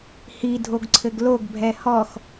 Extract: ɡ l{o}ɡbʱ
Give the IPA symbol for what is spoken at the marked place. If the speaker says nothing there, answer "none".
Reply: o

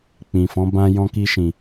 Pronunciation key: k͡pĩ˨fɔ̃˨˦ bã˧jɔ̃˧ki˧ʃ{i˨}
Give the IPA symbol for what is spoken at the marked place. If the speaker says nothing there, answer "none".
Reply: ĩ˨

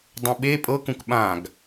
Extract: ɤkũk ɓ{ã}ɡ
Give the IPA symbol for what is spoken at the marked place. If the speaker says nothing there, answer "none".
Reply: ã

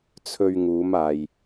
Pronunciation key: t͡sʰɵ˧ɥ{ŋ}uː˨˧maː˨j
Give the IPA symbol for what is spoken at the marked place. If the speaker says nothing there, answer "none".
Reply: ŋ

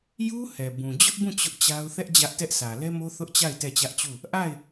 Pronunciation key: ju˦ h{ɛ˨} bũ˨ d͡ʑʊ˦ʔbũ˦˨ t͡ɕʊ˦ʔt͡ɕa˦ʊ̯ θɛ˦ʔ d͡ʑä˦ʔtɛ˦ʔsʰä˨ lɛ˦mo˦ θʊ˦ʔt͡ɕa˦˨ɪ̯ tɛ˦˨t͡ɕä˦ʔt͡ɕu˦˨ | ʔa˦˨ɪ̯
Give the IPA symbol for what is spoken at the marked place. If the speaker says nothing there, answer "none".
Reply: ɛ˨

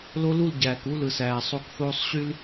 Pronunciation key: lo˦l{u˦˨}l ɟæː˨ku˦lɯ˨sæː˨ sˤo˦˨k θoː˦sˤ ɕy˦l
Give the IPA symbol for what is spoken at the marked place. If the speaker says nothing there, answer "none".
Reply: u˦˨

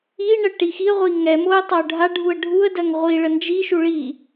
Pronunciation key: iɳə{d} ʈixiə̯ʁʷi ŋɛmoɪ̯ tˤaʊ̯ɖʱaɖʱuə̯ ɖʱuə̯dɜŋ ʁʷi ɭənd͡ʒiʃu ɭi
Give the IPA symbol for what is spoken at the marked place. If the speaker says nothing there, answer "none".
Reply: none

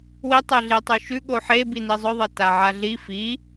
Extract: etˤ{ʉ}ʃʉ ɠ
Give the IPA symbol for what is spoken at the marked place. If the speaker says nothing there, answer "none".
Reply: ʉ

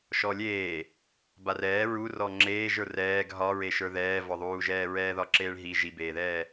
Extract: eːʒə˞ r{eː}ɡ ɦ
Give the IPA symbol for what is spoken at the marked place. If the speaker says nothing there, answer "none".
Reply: ɛː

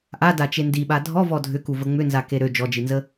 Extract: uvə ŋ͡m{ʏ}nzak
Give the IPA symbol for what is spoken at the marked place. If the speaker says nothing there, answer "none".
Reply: ʏ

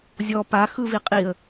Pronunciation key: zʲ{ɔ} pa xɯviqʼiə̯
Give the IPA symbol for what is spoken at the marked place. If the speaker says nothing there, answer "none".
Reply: ɔ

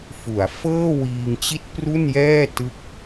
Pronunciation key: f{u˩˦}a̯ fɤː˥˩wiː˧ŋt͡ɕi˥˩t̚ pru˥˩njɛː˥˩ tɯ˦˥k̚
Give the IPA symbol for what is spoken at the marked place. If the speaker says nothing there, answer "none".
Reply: u˩˦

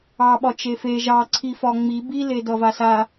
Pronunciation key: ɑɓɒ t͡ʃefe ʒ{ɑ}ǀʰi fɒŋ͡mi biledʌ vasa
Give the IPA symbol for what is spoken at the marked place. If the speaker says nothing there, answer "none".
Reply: ɑ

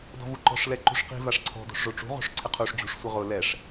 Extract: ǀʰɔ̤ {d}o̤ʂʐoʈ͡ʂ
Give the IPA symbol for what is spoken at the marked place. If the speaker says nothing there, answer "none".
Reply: d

